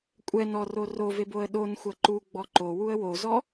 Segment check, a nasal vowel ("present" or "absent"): absent